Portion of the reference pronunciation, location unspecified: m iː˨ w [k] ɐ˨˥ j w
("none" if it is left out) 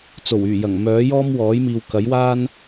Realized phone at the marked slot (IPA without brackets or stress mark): k